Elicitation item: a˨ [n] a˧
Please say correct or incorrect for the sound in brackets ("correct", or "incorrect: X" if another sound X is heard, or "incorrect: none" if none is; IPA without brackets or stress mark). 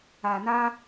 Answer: correct